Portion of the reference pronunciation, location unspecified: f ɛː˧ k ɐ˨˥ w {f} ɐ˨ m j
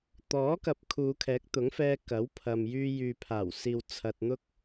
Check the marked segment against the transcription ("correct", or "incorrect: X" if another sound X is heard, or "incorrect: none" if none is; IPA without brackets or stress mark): incorrect: pʰ